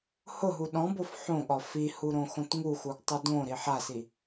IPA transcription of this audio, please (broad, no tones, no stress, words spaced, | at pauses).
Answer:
hʊɦu ɗɔ̃bof ħõɠɒ fihu ɾõxõtŋuxuɡ tˤodõɾi ħasi